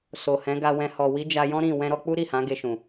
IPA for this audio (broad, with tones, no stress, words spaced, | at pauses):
so˨hɛ̃˨˦ɡa˧wɛ̃˧ hɔ˨wi˨˦ d͡ʒa˧jɔ̃˦ɾĩ˦˨ wɛ̃˧ɾɔ˧k͡pu˦ ɾi˦˨hã˨˦ɡe˧ʃũ˨